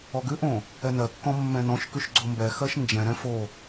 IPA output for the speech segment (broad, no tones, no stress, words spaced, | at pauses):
ɔɡʉʔõ | ɛnɜkːɔ̃ mːɛ̃nɔ̃ʃkʉʃ ɡ͡ǀombɛxɜʃ nd͡ʒɛ̃ɾɛ̃ fo